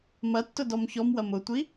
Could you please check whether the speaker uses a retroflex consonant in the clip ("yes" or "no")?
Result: no